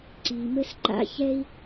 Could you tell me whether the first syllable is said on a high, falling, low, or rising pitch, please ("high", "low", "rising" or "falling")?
low